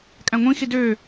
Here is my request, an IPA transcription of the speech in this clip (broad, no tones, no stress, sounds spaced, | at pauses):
kʼ æ̃ ŋʷ ĩ x i d ø